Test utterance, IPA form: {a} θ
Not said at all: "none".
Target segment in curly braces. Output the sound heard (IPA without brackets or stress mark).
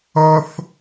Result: ʌ